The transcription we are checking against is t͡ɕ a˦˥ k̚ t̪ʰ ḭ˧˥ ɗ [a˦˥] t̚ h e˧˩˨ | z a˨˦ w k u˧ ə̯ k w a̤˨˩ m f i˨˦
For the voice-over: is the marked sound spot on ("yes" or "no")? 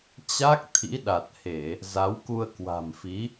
no